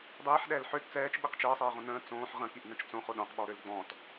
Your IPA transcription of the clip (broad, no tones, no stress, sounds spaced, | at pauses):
dˤ iː ħ ɗ ɛː l ħ ø t t͡s ɛː t͡ʃ ɓ i q t͡ʃ əː sˤ iː ʁ õ n ə̃ː t͡s õː ħ ʁ ə̃ k i ʔ n ə̃ t͡ʃ t͡s õ χ o ɗ õ q ɓ ɔ ɾ ø l ɡ͡b ɔ̃ t